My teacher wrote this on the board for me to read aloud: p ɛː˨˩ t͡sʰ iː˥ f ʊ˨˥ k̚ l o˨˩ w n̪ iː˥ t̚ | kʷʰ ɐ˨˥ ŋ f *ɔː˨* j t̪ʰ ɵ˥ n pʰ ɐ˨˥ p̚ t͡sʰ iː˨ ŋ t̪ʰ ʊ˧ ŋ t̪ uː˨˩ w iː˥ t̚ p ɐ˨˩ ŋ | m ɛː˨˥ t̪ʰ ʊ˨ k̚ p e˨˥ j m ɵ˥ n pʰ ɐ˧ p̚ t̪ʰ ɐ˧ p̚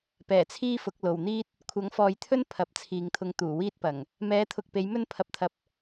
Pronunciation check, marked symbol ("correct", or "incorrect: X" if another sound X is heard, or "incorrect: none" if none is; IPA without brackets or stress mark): correct